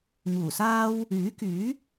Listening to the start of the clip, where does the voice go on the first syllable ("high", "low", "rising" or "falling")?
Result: low